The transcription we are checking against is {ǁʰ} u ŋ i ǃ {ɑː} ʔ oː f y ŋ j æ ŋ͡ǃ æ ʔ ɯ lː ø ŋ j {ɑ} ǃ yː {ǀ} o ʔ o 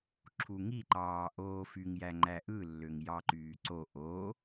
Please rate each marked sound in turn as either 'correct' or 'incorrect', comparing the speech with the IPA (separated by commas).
correct, correct, correct, correct